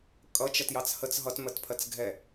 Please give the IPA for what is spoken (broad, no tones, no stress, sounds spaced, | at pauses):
kʼ ʌ t͡ʃ ɜ t j ɑ t͡s h ə t͡s ɦ ʌ t m ɜ t pʰ ɜ t͡s ɡʱ ɛ